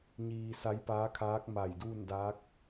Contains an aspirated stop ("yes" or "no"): yes